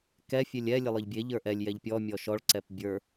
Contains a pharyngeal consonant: no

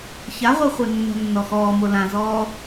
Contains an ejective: no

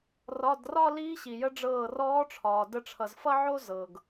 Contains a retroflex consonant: yes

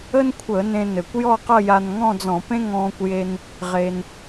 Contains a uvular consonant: yes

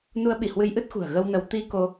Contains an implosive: yes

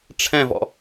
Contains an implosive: no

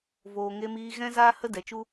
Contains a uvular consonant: no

